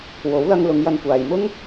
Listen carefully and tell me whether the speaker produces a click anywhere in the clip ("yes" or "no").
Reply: no